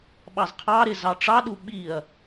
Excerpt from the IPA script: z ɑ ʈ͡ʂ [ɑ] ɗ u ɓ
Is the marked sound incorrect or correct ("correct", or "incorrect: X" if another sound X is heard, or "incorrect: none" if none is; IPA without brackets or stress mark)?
correct